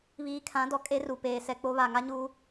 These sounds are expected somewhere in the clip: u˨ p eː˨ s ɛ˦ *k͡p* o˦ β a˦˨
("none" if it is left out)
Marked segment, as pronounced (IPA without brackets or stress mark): k͡p